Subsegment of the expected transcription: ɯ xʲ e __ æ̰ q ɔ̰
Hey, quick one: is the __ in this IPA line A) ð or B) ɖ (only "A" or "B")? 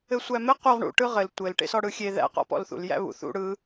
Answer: A